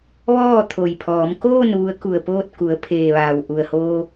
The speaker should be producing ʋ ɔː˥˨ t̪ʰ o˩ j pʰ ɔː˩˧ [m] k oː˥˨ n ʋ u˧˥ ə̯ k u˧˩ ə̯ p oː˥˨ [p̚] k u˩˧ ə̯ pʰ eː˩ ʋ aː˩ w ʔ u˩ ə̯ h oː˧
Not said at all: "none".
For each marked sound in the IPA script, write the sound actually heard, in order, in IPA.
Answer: m, t̚

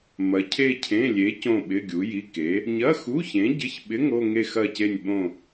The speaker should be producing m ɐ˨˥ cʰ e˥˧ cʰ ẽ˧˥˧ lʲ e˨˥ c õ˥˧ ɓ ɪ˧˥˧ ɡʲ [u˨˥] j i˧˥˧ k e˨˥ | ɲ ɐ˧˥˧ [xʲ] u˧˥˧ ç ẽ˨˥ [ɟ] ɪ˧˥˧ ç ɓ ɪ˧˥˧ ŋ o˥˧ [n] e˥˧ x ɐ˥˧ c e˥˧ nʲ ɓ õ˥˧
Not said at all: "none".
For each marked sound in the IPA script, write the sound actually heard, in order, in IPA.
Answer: u˨˥, x, ɟ, ŋ

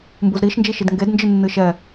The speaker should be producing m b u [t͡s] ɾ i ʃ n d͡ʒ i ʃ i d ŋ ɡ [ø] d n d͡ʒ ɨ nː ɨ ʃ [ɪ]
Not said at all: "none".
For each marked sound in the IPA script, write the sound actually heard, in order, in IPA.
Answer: z, e, ɛ

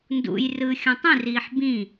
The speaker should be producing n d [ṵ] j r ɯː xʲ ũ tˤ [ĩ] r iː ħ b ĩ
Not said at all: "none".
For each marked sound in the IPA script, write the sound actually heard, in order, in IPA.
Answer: ṵ, ĩ

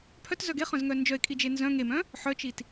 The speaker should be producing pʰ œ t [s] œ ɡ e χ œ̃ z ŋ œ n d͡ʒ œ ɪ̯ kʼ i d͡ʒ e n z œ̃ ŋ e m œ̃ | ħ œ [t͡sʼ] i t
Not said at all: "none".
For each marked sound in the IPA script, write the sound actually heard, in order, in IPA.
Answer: z, t͡ʃ

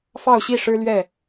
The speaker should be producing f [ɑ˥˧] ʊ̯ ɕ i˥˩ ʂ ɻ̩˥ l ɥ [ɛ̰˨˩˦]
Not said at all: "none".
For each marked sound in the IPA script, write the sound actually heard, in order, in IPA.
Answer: ɑ˥˧, ɛ˥˩

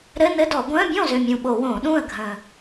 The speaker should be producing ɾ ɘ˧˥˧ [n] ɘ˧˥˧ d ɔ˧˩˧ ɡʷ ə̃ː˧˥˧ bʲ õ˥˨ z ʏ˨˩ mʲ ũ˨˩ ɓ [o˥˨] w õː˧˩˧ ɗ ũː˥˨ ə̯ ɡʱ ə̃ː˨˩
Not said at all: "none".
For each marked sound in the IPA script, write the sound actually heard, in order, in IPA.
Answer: n, o˧˩˧

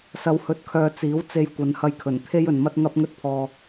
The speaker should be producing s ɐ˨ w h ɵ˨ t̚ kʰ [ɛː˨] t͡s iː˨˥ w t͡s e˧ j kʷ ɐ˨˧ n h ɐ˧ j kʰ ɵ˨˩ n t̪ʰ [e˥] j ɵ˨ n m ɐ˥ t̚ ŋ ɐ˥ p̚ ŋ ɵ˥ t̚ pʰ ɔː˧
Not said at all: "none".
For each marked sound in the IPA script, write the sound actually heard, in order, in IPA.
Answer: œː˨, e˥

